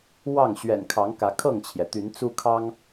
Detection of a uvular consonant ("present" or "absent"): absent